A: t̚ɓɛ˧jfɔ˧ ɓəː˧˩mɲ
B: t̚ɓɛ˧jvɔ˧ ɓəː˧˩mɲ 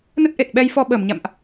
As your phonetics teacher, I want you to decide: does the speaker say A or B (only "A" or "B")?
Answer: A